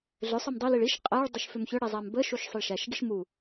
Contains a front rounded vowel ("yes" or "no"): yes